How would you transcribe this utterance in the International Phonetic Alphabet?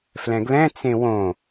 f l ɛ̃ ɡ l ɛ̃ t͡s ẽ w õ

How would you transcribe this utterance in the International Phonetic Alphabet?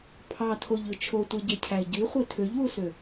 pʰ ɑ tʰ o ʎ ɯ t͡ʃʰ o tʷ e ɟ e cʰ æ ɪ̯ ɟ y χʷ i tʰ ø ʎ w u s ø

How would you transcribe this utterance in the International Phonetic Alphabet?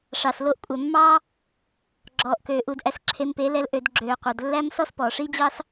ʂ ɑ˨ s l o˧ ʔ kʷʼ æ˨ mː ɑ˦ | ɡ͡ǁ ɔː˨ ʔ k øː˨ ʔ u˨ d ʔ æ˨ s ǁʰ e˧ m p e˨˦ l ɛ˧ l ʔ ø˨ d ɡ͡ǁ øː˨ qʷ œ˨ d lː æ˧ m s ɔ˦ s p ɔː˨ ʂ i˦ d͡ʑ ɑ˦ s

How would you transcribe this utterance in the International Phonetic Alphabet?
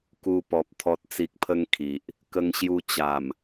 k u˧ p ɔ˨ p̚ t̪ʰ ɔ˨ t̚ t͡s i˨ k̚ pʰ ə˧ ŋ kʰ i˨ ʔ | k ə˧ ŋ ɕ j u˧ t͡ɕ a˨˩ m

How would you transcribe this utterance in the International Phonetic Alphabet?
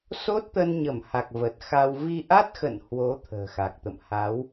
s o˦˥ t̚ t̪ ə˧ n ɲ ə˧˩ m h a˨˩ k̚ v ə˨˩ t̚ x a˧ w v i˧ ʔ a˦˥ t̚ x ə̰˧˨ n h w o˨˦ t̪ʰ ə̤ː˨˩ x a˨˩ k̚ t̪ ə̰˧˨ m h a˨˦ w

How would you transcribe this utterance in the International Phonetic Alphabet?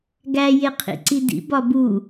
ɡ æ j e qʰ ḭ ǀ i d ḭ b ɒ b u

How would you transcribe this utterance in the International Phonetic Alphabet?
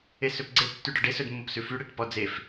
e s ø p ɡ͡ǀ e tː y ɖ ɔ ɖ e s ɵ d mː o p s ʉ f y ɽ e ʈ p ɔ d͡z e f

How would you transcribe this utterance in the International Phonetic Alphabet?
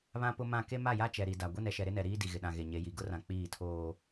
β ã˦ p ʊ˦ m ã˦˨ k e˦ m a˦˨ j a˦ t͡ʃ ɛ˨ ɾ i˨ d a˨ ɡʷ e˦ n ɛ˨ ʃ ɛ˨ ɾ ɪ˦ n ɛ˨ ɾ iː˦ d i˨ ɣ ɪ˨ ɗ ã˨ ɣ e˨ ɲ e˨˦ j i˨ ɡ ʊ˦ r ã˨ k͡p iː˦˨ tʰ oː˦

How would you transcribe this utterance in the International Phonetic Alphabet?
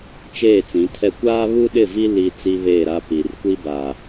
t͡ʃ eː˦˨ t͡s ĩ˨˦ tʰ ɛ˦ kʷ aː˦ β u˦ ɗ ɪ˦˨ v i˦ l i˦ t͡s i˦ β eː˦˨ ɾ a˦ p i˨ r kʷ i˦ b a˨

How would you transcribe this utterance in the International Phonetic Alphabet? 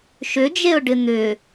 ʃ ʏ d͡ʒ e ʊ̯ ɖ ɪ n̪ ʏ

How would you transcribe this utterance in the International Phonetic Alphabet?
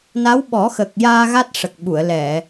n a˧˥ w ɓ ɔ˨˩˦ x ə˨˩ k̚ j aː˧ ɣ a˦˥ t̚ ʂ ə˨˩ k̚ ɓ u˨˩˨ ə̯ l ɛ˨˩˨

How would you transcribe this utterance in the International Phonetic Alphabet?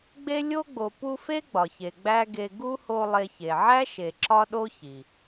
ɡ͡b e˥ lʲ o˥ ɡ͡b o˨ p u˦ f e˥ ɡ͡b ɒ˩ ç e˩ ɡ͡b æ˥ ɡ e˦ ɡ u˥ h o˦ lˠ e˦ ç e˨ ʕ æ˥ ʃ e˨ ǁ ɒ˥ ɗ o˥ ç i˩

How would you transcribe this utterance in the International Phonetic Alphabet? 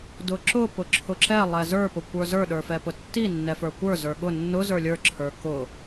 d ʊ ǁ ʊ p ʊ ǁʰ ʊ ǁ ɛ lˠ ɛ z ə˞ p ʊ kʷ ə˞ z ə˞ ɗ ə˞ f ɛ p ʊ tː i nː ɛ f ə˞ kʷ ə˞ z ə˞ ɠ ʊ nː ʊ z ə˞ lʲ ə˞ ǁʰ ə˞ k ʊ

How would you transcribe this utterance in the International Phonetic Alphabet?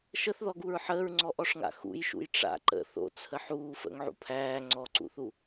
ʃ ə θ ð ɔ ɡ u ɹ ħ əː ɹ ŋ͡ǀ ɔ ʔ ɔ ʂ ŋ a̰ x ṵ j ʃ ṵ j ʈ͡ʂ a̰ ǃ ə̰ θ o̰ t͡sʰ ə ħ uː f ə̰ ŋ ʕ ṵ pʰ æː ŋ͡ǀ ɔ ǀ ṵ θ u

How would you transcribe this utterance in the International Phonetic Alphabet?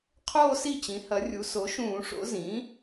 qʰ oː˥˧ s i˥˩ t͡ɕ ĩ˩˥ h ɐ˩˥ rʲ u˩˥ s o˩˥ ʃ ũː˧˩˧ ʂ o̰˩˥ z ĩː˩˥

